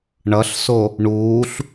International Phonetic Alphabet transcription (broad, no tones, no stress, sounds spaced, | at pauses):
ɳ ʌ ɬ s o | ɳ uː ɬ